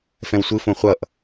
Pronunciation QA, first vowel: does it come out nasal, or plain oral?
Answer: nasal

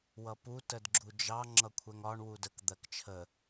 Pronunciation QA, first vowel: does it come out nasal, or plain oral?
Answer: oral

